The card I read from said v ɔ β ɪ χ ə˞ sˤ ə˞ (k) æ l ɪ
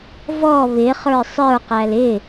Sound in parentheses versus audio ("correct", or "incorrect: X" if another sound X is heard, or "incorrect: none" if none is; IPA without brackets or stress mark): incorrect: q